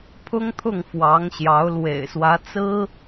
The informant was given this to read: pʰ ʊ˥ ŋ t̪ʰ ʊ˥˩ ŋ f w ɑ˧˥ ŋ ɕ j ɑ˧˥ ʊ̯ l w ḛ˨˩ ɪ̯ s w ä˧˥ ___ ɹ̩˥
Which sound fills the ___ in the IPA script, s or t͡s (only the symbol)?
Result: t͡s